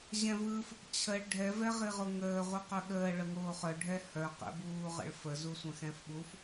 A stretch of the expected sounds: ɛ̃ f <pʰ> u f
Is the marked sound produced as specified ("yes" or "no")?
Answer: no